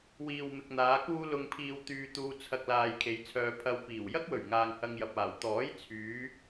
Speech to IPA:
w iː˨ w m ɪ˨ k̚ n̪ aː˨˧ k uː˧ l ʊ˨ ŋ pʰ iː˨ w t̪ yː˧ t̪ uː˧ t͡sʰ ɐ˧ k̚ l aː˨ j kʰ e˨˧ j t͡sʰ œː˧ pʰ ɐ˧ w p iː˨˩ w j ɐ˥ k̚ w ɵ˨˩ ɥ ŋ aː˨ ŋ h ɐ˧ ŋ j ɐ˨ p̚ aː˨˩ w t̪ ɔː˨˥ j t͡sʰ yː˨˧

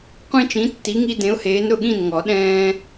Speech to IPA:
qʷ ĩ˦ t͡ʃ ĩ˨˥ tː i˨˥ ŋ i˦ d ẽ˨˥ ʊ̯ h eː˨˥ n ɾ ʊ˥˩ ɠ ĩ˥˩ n ŋ ɔ˨˩˦ ɗ ɛ̃ː˦

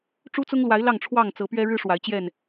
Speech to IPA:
ʈ͡ʂ u˦ t͡s ʊ˦ ŋ l w a˨˦ ɪ̯ l ɑ˥˨ ŋ ʈ͡ʂʰ w ɑ˥˨ ŋ t͡s ɤ˨˦ p ɥ ɛ˦ ɻ ɻ̩˦ ʂ w a˨˦ ɪ̯ t͡ɕ j ɛ˥˨ n

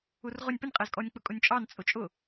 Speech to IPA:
u r ʁ ʊ nʲ p ə nʲ qʼ æ z kʼ ɔ nʲ k͡p ʊ kʼ ʊ nʲ t͡ʃʼ ɑ n t͡sʼ ʊ t͡ʃʼ ʊ

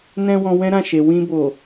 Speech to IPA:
n ɛ̃˦ w ɔ̃˧ w ɛ̃˦ ɾ ã˦˨ ʃ e˨ w ĩ˧ b o˨

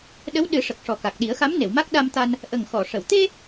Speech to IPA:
ɗ ə˧˥ w ɗ ɨ˨˩˦ ʂ ə˨˩ k̚ ʂ ɔ˨˩ k a˨˩ k̚ ɗ i˨˩˦ ə̯ x a˧˥ m n e˨˩˨ w m a˦˥ k̚ ɗ a˧ m t̪ a˧ n | ʔ ə˨˩ ŋ x ɔ˨˩˨ ʂ ə˨˩˨ w t̪ e˧

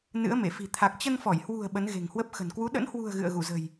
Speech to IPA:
n ɨ̰˧˥ ə̯ m e˧˩ f i̤˨˩ t̪ʰ a˨˩ k̚ t͡ɕ ə˧ n f ɔ˧˩ j h w ṳ˨˩ ə̯ ɓ ə˨˦ n ɣ e̤˨˩ ŋ h w ə˦˥ p̚ x ə̤˨˩ n k w u˨˦ ɗ ə̰˧˥ n h w ṳ˨˩ ə̯ ɣ ɨ̰˧˨ ə̯ ɣ u˧˩ z ə̤˨˩ j

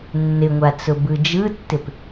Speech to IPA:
nː ɪ ŋʷ a t͡s ʊ b ɯ d͡ʒ ɯ tː ɪ p

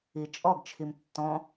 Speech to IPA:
i t͡ʃʼ ɔ ɡ t͡ʃʰ i m tː ɔ̃

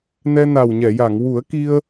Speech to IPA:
n ɛ˧ n a˨˩ w ɲ ɛ˨˩˨ j a˨˩˨ ŋ w u˨˩˦ ə̯ k i˧ ə̯

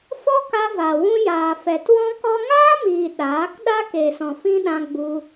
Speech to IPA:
f ɔ˦ k a˧ v a˨ w ũ˧ j aː˨ f ɛ˨ t w ɔ̃˦ k ɔ˦ ŋ aː˦ m iː˨ ɗ aː˨˦ k ɗ a˦ k e˨ s ɔ̃˨ f ĩ˦ ɗ ã˧ ɡ͡b u˧

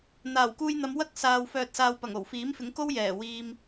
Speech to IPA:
n̪ aː˨˩ w k uː˧ j n̪ ɐ˨˧ m w ɐ˥ k̚ s aː˨ w f œː˨ t̚ s aː˨ w p ɐ˨˩ ŋ o˨˩ w f iː˨˥ m f ɪ˨˥ ŋ k o˥ w j ɛː˨˩ w iː˧ m

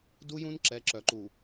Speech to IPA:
d u˦ j ũ˦ n ǁ ɛ˨˦ ǁ œ˨ ǃ u˨

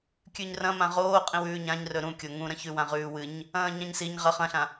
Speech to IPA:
kʲ ʉ ɲ r ɐ̃ m ã ʁ oː qʼ ĩ w ʉː ɲ ã ɲ r ɵ ɾ ũ kʲ o ŋ ũ ɾ ɐ̃ ç ʉ w ã ʁ ʉː w ɨ ɲ | ɐ̃ː ɲ ã ɲ s i ɲ ʁ ɐ χ ɐ̃ ɬ ã

